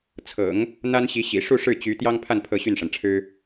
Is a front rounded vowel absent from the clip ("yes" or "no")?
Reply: no